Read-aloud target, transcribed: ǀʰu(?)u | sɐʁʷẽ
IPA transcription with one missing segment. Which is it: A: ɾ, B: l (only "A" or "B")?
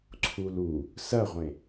B